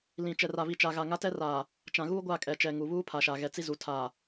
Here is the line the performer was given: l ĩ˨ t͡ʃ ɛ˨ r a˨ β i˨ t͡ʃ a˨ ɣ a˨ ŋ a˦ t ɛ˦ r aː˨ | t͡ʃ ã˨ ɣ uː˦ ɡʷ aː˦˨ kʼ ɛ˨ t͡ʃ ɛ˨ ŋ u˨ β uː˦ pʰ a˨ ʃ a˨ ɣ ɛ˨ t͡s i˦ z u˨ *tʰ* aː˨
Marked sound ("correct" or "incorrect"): correct